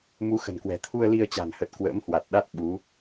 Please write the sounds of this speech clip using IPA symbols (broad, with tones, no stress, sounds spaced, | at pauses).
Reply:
m u˨˦ x ə̤˨˩ n k w ɛ̤˨˩ t̪ʰ u˧ ə̯ l i˧ ə̯ t͡ɕ a̤˨˩ n h ə˨˩ t̚ k w ə̰ː˧˥ m h w a˨˩ t̚ ɗ a˦˥ t̚ ɓ u˨˦